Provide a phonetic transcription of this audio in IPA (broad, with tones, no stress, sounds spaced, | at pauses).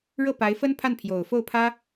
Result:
ɻ ɤ˥˩ p a˧˥ ɪ̯ f ə˥ n pʰ a˥˩ n pʰ j o˨˩ ʊ̯ f o˥˩ ʊ̯ pʰ ä˥